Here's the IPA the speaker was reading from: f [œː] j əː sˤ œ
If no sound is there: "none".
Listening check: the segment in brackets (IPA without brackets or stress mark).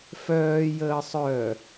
œː